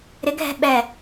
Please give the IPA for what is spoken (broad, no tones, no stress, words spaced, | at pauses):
ɾɪɡʱɛ̤ ɓɛ